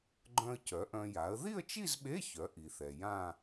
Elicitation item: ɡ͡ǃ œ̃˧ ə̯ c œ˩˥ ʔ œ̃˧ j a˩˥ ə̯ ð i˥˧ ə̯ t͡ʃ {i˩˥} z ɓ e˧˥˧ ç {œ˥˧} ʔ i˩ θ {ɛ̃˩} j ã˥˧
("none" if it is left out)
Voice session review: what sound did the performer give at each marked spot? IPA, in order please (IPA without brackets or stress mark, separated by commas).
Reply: i˥˧, œ˩˥, ɛ˩